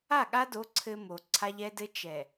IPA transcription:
a˦˨ ɠ a˦ d o˨˦ ǀʰ ɘ˦ m o˨ ǀʰ a˦ ʎ ɛ˦ d ɘ˦ t͡ʃ ɛ˨

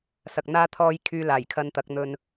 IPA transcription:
s ɐ˨ k̚ n̪ aː˥ t̪ʰ ɔː˥ j kʰ yː˧ l aː˨˩ j kʰ ɐ˧ n t̪ ɐ˨˥ k̚ n̪ ɵ˧ n

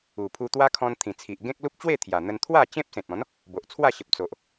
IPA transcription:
u˨˩ pʰ u˧ t̪ w a˦ kʰ ɔ̃˧ n t̪ʰ ĩ˨˩ t͡sʰ i˨ ʔ ɡ ẽ˦ k̚ l u˦ p̚ t͡ɕ w e˥˧ t̪ʰ j a˨˩ n̪ ə˧ n t̪ʰ w a˥˧ t͡ɕ ẽ˦ p̚ s ẽ˨ t̚ ɔ̃˨˦ n | b o˨ ʔ t͡sʰ w a˥˧ ɕ ə˨ p̚ t͡s o˨ ʔ

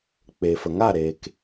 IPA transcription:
k͡p e˨ f ə˨ ŋ a˦˨ ɾ eː˨ k

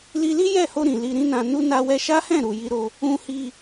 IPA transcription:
l i˧ l i˦ j ɛ˦˨ h o˧ ɾ ĩ˨ l i˧ ɾ ĩ˦ n ã˧ n u˦ n a˧ w ɛ˧ ʃ a˦ h ɛ̃˦˨ ɾ u˨ j i˧ ɾ o˧ | ũ˧ h i˧

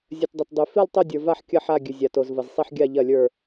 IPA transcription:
zʲ ɐ˩ t dˤ ɐ˩ t dˤ ʉ˩ f i˦˨ lˠ tˤ o˦˨ dʲ ə˞˩ v a˦˨ ħ kʲ ɐ˦˨ ħ a˦˨ ɡʲ ʉ˩ zʲ a˩ t o˩ z v ɐ˩ z sˤ i˦˨ ħ ɡʲ a˦˨ ʎ ɐ˦˨ lʲ ə˞˦˨

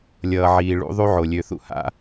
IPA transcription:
lʲ ʌː˨ ʕ iː˨ ɭ ṵ˦ ðˤ u˦ ʕ o˨ lʲ ø˨ θ ṵ˦ h a̰˦

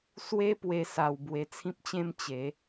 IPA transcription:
s w e˦ p w e˧ s a˧ w b w e˧ t͡sʰ ĩ˦ p̚ t͡ɕ ẽ˦ m t͡ɕ e˨˦

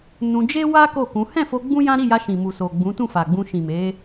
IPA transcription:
n ũ˧ d͡ʒ e˦ w a˦ k o˦˨ k ũ˨˦ h ɛ̃˦˨ f o˧ ɡ͡b ũ˦ j ã˦ ɾ i˦˨ j a˧ ʃ ĩ˨ m u˨ s o˨ ɡ͡b ũ˨˦ t ũ˦˨ f a˨ ɡ͡b ũ˧ ʃ ĩ˨ m e˨˦

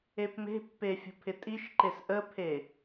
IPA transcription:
e p m e̤ pː e fʲ ə̤ pʰ ɪ tʼ i ʃ ǃ e s ʔ ə pʰ e

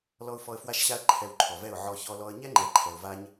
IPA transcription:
l ɔ˧ ʊ̯ f ɔ˧ ə̯ f w a˦˨ ʃ ɕ a˦ ə̯ ǃʰ ɛ˧ w ǃʰ ɔ˨ v ɛ˦˨ ʊ̯ ʕ ɔ˧ ç ɔ˧ l ɔ˧ ə̯ ɲ ɛ˦ ŋ͡ǃ ɛ˨ ǃʰ ɛ˨ ʊ̯ v a˦ ɲ

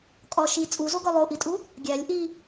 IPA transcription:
kʼ ɒ ʃ i t͡sʼ u z o ɡ ɒ lˠ o ʔ i tʼ u | ɡʲ æ lʲ ʔ i

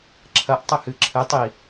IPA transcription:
ǁʰ ɐ ʔ tˤ ɘ h ɨ ǁʰ ɘ tˤ i

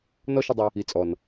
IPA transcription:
n ɔ˦ ʃ ɪ˧ dˤ ɪ˧ | i˨ t͡sʼ ɔ˨ n

